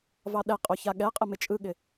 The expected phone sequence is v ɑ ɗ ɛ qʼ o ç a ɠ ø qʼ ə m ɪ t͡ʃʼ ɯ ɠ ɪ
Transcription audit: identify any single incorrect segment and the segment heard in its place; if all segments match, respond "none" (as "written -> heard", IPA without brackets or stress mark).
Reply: ø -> ɛ